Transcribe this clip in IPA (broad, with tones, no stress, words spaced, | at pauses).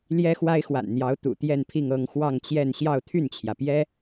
ljɛ˥xwa˥ɪ̯xwa̰˨˩nn̪jɑ˧˥ʊ̯ t̪ṵ˨˩t̪jɛ˥˧npʰi˥˧ŋ ɤ˥˧ŋxwɑ˥˧ŋt͡ɕjɛ˥˧n ɕjɑ˥˧ʊ̯t̪ʰy˥˩nt͡ɕʰjä˩ pjɛ˥